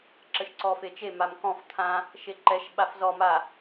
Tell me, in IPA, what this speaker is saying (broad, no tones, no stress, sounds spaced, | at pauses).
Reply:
ǁ ə ʃ ǀ ɔ f e t͡ʃ e m a m k ɔ̃ f t̪ʰ ã | ʃ e ǃ ɛ ʃ ɓ a f z ɔ m a